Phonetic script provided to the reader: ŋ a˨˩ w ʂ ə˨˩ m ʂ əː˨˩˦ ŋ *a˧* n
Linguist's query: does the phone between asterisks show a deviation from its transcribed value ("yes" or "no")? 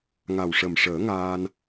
yes